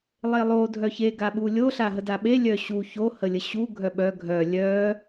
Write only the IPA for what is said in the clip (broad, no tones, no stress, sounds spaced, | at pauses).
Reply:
lˠ e lˠ o dʱ œ ç e ɡ a ɓ u lʲ o ɬ a ɦ ə d a ɓ e lʲ œ ɕ u ç o h ə lʲ ə ɕ u ɡʱ œ ɓ œ ɡʱ œ lʲ œ